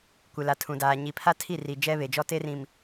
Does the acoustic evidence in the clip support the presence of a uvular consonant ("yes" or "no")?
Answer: no